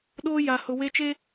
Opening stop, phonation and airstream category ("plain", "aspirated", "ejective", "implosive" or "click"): implosive